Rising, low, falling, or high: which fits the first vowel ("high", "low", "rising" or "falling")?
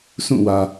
falling